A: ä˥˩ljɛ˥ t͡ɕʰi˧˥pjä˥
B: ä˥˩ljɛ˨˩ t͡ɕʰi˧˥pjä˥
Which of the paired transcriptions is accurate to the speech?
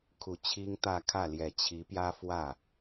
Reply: B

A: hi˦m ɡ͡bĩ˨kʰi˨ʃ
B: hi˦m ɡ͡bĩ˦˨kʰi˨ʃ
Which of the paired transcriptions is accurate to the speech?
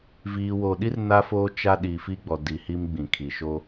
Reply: A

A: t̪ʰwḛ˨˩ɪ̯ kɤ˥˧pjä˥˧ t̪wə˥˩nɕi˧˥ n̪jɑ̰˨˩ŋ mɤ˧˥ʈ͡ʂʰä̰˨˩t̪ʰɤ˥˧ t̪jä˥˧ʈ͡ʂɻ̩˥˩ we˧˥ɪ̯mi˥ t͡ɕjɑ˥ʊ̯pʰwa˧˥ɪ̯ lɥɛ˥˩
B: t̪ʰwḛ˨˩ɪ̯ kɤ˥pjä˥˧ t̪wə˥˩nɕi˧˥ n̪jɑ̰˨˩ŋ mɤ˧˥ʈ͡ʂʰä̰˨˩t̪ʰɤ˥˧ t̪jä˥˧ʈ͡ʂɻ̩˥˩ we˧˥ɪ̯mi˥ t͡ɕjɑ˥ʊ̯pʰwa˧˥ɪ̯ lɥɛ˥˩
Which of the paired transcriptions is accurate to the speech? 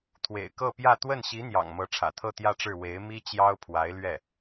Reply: A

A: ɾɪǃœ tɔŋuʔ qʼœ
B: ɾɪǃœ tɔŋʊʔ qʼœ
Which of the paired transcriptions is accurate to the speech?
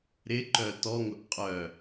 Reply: B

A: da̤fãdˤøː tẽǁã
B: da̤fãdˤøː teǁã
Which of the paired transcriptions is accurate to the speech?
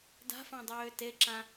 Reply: B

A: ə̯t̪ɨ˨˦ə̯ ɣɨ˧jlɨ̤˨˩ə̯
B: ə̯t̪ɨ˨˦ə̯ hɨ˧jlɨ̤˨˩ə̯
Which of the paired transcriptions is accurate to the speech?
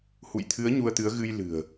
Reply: A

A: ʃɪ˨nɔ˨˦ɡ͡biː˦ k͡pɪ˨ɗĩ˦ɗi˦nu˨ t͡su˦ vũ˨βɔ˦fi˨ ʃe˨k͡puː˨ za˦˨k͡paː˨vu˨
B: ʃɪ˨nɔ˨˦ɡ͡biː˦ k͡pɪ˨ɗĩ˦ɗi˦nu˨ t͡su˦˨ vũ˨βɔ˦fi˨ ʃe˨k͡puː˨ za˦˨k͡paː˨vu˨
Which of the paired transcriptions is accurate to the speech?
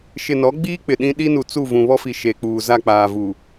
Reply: B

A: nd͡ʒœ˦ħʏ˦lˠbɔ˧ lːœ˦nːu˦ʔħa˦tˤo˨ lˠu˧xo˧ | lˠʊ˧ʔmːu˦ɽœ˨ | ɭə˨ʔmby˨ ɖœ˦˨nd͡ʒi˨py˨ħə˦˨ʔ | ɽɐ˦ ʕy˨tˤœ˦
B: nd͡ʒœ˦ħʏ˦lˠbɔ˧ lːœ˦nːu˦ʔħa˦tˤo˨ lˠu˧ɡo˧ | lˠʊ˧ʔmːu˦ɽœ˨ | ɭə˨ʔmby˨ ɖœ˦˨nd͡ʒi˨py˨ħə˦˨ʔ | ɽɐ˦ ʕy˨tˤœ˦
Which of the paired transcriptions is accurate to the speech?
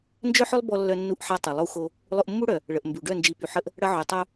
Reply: A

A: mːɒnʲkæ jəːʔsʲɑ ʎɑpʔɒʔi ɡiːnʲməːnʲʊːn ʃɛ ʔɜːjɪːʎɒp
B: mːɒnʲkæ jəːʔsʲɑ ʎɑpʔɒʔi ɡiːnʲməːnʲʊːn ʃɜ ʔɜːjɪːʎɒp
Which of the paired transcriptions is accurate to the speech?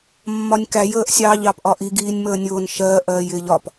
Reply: B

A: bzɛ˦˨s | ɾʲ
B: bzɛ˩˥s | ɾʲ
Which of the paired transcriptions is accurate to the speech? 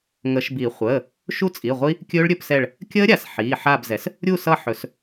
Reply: B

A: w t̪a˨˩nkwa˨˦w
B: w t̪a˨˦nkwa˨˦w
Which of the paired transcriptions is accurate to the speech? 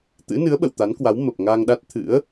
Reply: B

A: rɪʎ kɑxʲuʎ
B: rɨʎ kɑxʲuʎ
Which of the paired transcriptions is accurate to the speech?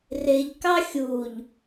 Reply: A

